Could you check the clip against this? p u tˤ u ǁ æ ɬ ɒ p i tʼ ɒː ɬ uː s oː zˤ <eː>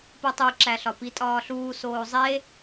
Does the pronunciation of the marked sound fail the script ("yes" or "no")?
yes